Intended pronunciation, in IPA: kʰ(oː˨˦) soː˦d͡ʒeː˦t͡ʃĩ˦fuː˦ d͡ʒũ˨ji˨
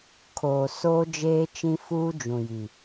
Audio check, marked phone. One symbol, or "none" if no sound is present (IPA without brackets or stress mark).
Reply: oː˨